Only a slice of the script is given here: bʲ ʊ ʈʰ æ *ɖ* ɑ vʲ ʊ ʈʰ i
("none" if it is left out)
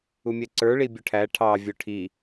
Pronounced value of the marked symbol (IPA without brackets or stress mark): ʈʰ